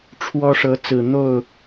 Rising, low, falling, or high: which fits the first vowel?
high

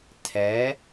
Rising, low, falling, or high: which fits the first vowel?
rising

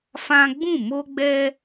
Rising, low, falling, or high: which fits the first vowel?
high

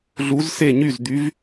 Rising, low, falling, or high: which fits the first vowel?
rising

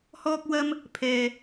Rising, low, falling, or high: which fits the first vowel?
high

